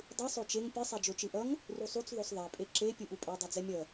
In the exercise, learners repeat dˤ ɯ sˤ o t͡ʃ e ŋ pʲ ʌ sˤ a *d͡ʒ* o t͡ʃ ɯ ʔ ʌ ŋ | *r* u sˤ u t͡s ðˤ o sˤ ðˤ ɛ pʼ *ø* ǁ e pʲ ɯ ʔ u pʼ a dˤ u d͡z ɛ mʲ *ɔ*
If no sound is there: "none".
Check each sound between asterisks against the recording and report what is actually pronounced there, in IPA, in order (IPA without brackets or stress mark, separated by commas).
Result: d͡ʒ, r, e, ʌ